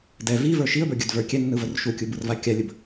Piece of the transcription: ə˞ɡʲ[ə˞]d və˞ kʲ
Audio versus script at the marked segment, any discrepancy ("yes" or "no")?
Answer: no